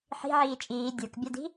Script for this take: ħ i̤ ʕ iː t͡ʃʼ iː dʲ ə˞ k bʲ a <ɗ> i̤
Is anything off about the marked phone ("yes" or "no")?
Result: yes